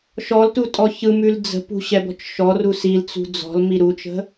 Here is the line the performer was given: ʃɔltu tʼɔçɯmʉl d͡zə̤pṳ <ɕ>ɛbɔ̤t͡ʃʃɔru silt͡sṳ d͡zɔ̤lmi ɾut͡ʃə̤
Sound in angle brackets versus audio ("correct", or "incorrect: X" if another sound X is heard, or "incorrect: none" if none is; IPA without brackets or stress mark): correct